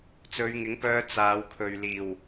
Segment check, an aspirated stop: present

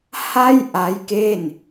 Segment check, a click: absent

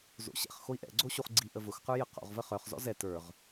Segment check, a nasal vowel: absent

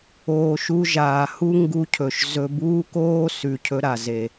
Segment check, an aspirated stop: present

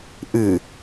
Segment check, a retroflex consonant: absent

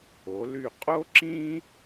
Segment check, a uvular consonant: present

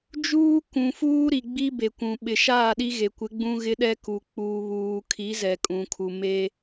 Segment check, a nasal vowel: present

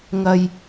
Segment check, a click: absent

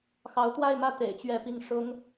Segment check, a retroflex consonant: present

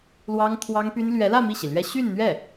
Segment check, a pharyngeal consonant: absent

